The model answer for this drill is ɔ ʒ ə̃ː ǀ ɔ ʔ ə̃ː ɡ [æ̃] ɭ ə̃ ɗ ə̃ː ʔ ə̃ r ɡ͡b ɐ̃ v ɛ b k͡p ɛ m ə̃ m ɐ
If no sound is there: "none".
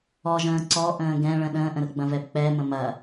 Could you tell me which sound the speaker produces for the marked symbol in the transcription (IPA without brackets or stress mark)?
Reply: ɛ̃